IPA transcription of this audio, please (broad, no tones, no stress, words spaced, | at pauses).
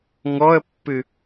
ŋɔə̯pːɨ